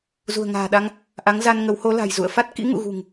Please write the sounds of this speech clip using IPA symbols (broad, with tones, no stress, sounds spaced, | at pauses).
z ṳ˨˩ ə̯ ŋ a̤ː˨˩ ɗ a˧ ŋ | ʔ a˨˦ ŋ z a˧ n ŋ ə˨˦ w h o˨˦ l a̤˨˩ j z ṵ˧˨ ə̯ f a˦˥ t̚ k ḭ˧˥ ŋ ṵ˧˨ ɣ ṳ˨˩ ŋ